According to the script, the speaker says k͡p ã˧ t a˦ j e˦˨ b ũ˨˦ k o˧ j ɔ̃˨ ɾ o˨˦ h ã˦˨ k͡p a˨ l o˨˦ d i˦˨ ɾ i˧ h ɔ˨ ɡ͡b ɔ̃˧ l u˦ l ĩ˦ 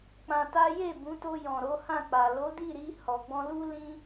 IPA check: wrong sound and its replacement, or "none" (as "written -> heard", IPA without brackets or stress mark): k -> t